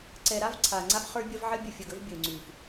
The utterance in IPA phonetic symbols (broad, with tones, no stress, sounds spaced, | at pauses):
ǀ ɛ˨ ɾ a˦ v ǀʰ a˨ ŋ͡ǀ a˦ f χ ə˞˦ bʲ ɐ˦ v ʕ ə˦ bʲ ə˨ fʲ ɐ˨ ɡ ə˦ v bʲ ə˨ u̯ ŋ͡ǀ ʉ˨ f